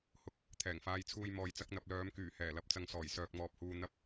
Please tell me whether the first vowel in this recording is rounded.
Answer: yes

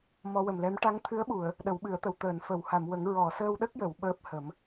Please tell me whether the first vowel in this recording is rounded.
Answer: yes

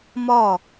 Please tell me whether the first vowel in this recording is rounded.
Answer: yes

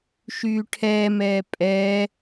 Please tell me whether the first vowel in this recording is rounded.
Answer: yes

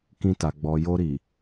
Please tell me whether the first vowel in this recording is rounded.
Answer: no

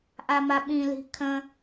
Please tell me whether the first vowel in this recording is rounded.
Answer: no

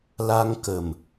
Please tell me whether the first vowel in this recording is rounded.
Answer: no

